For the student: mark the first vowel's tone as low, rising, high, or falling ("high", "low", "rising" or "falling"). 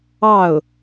falling